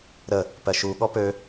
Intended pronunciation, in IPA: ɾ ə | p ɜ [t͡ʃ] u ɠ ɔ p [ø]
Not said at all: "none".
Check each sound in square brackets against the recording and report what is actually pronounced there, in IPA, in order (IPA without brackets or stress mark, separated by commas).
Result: ʃ, ø